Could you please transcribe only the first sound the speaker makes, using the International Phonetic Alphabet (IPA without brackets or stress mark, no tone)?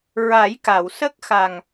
ɹ